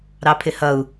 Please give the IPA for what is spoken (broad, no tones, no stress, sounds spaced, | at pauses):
ɾ ɑ pʰ ɪ h ʌ u̯